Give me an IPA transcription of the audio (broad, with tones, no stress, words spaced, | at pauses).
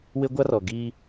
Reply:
wɪ˦ɡʷa˦rɔ˨ ɡi˦